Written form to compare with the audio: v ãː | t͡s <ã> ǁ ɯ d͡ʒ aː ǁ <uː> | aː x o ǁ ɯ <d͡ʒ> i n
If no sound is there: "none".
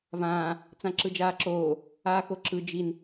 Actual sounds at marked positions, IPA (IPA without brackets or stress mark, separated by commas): ã, oː, d͡ʒ